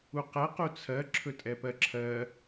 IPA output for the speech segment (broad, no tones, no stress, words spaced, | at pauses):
uqɛ qut͡sʰɜ ǁʰɵtʼɛpɜǁʰɜ